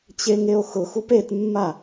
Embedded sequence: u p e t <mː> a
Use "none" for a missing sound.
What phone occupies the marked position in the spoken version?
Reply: mː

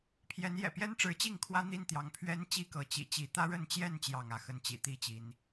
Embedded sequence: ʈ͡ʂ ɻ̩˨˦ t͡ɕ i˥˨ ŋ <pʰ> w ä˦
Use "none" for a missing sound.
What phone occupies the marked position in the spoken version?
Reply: kʰ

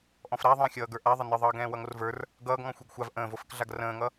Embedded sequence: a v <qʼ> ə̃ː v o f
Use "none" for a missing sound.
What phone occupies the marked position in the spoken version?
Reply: ʔ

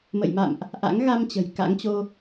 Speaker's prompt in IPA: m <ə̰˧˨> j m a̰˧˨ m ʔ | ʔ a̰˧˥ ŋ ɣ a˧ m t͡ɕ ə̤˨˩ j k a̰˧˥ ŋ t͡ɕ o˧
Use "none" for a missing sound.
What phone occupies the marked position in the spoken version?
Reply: ə̰˧˨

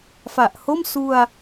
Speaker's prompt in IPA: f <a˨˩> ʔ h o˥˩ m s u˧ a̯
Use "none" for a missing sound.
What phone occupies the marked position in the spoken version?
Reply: a˨˩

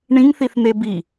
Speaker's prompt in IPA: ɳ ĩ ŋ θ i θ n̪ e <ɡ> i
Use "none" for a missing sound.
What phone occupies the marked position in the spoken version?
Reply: b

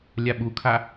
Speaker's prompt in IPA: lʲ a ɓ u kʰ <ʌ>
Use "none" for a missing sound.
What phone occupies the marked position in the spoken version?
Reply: a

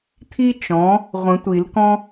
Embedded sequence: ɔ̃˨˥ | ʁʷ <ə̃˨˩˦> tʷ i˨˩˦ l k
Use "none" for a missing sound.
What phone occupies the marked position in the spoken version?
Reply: ə̃˨˩˦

